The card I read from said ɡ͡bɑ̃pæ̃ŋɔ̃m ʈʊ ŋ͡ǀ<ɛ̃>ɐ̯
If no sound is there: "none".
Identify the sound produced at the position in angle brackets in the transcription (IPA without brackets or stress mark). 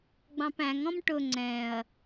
ɛ̃